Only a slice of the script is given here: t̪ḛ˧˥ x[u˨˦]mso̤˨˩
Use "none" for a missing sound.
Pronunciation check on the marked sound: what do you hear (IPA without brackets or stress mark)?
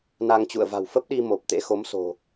o˨˦